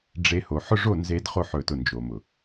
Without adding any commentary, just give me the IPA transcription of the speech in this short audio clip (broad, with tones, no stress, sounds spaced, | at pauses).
ɖ͡ʐ e˦ h o˧ ħ ʊ˦ ʐ o˦˨ n z e˧ d χ o˧ ħ ɵ˨ t ʊ˨ n d͡ʒ o˨ m ʊ˨